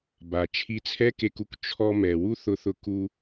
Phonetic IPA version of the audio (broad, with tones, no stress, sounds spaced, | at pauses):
b a˩ t͡ʃʰ i˧ t͡sʰ ɛ˥ k e˧ k u˥ k t͡ʃʰ ɔ˧ m ɛ˩ w u˥ θ ʊ˧ θ ʊ˧ k u˧